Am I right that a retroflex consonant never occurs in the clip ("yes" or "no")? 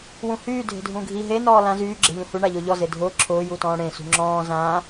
no